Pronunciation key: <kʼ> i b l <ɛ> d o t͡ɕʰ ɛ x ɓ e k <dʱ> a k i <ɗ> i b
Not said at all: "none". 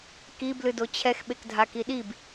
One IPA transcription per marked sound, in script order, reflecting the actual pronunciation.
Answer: k, ɨ, dʱ, ɗ

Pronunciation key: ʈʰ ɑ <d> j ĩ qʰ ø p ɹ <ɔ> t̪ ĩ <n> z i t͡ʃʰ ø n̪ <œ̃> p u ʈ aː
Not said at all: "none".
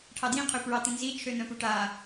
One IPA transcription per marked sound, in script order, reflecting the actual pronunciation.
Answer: d, ɑ, n, œ̃

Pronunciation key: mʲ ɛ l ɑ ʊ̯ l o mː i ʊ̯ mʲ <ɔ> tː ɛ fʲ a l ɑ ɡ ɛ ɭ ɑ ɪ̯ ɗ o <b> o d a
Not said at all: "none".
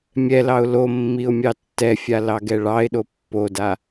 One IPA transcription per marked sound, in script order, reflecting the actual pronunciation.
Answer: ɑ, pː

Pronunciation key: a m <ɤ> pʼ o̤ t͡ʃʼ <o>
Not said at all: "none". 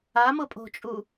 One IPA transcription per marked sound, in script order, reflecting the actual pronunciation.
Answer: ɤ, u

